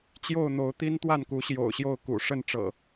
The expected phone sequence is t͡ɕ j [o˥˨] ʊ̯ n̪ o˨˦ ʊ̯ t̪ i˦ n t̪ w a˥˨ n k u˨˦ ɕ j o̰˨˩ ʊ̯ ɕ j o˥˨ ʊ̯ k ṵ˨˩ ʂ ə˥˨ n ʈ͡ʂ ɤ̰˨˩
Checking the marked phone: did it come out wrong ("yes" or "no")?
no